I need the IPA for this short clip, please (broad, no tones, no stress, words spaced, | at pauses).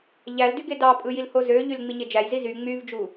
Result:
ʎældy ɡedɑpʼɯ jilhozøʎyl ŋ͡miɲed͡ʒæjzi zy ŋ͡myvd͡ʒu